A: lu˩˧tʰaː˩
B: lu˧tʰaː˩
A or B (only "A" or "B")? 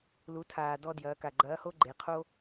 A